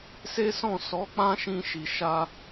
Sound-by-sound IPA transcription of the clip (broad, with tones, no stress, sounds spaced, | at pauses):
s e˦ s ɔ̃˦˨ s ɔ˨˦ k͡p ã˦ ʃ ĩ˧ ʃ i˨ ʃ a˧